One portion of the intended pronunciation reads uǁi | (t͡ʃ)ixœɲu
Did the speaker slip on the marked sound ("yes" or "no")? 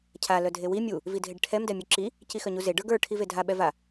yes